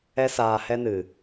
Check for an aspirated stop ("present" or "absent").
absent